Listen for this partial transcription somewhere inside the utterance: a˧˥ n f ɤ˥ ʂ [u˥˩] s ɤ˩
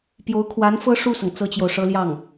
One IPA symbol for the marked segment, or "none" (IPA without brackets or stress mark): u˥˩